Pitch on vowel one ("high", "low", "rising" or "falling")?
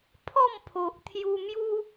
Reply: falling